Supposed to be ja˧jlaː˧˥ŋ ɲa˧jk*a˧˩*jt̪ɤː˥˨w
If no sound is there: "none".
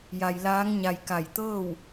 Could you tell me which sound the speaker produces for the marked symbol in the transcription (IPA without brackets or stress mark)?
a˧˩